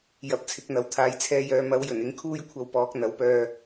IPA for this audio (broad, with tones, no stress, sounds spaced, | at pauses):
j ɐ˨ p̚ t͡sʰ ɪ˨˥ k̚ n̪ ɐ˨ w t̪ʰ aː˨ j t͡sʰ ɛː˧ j œː˨˧ m ɐ˨˥ w j ɵ˨˩ n ɪ˧ ŋ kʰ uː˥ j kʷʰ ɐ˧ w p ɔː˨˥ k̚ n̪ ɐ˨˥ w p œː˧